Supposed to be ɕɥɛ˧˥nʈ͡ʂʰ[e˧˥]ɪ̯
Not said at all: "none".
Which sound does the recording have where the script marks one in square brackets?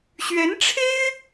e˥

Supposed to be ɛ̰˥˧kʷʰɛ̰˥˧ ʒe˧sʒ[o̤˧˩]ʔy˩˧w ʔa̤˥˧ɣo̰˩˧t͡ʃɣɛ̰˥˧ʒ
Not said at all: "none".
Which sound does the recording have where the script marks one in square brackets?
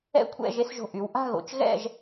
o̤˧˩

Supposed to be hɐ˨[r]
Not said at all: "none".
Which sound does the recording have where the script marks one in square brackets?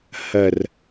r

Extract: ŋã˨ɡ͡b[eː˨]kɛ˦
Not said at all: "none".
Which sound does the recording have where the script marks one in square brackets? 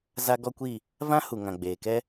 eː˨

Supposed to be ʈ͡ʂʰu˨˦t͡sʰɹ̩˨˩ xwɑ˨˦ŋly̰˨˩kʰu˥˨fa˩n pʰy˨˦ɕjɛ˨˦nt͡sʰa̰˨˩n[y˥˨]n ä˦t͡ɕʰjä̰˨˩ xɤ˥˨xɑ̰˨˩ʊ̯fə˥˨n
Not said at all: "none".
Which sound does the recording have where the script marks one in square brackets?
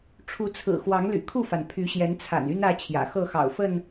y˦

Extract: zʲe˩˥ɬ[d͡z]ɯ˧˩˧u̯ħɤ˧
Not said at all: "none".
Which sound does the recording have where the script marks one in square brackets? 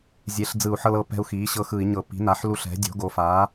d͡z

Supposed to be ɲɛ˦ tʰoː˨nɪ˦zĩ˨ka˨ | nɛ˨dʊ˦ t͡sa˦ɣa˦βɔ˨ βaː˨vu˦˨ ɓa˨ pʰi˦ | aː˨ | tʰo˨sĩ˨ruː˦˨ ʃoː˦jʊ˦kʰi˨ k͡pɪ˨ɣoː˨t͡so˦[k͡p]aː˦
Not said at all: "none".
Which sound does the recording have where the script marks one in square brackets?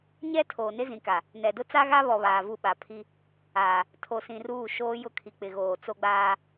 ɡ͡b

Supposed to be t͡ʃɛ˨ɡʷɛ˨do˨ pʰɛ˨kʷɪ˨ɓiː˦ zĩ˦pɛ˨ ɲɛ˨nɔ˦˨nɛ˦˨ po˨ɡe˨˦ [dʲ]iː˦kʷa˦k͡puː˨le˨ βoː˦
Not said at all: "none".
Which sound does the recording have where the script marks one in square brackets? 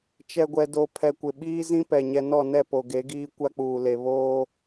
ɡ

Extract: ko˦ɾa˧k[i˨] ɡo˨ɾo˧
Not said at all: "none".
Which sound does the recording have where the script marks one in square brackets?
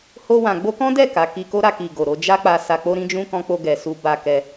i˨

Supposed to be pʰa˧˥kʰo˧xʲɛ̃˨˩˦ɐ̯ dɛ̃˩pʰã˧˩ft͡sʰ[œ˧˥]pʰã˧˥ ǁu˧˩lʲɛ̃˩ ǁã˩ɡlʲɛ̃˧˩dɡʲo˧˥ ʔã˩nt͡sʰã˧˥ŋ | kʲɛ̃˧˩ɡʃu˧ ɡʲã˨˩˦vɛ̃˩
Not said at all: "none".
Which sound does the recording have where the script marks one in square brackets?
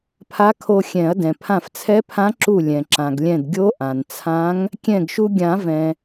ɛ˧˥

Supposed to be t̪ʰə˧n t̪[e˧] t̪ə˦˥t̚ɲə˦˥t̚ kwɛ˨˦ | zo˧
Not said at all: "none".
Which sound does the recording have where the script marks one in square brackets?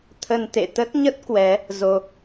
ḛ˧˨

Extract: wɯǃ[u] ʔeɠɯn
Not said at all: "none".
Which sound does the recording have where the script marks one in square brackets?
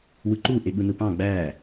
u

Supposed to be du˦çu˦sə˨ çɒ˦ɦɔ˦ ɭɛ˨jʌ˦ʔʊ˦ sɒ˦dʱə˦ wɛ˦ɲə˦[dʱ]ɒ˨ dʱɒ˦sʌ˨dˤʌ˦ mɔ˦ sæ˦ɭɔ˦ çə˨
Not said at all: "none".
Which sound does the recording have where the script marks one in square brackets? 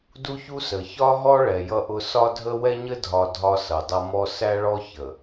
dʱ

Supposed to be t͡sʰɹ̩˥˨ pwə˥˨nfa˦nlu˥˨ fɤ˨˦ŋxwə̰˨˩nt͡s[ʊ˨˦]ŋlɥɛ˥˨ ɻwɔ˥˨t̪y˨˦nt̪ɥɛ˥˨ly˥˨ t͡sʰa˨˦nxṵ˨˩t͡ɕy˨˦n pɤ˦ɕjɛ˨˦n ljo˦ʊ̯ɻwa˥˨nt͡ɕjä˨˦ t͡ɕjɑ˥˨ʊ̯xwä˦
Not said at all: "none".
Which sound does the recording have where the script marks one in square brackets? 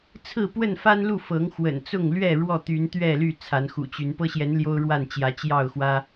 ʊ˥˨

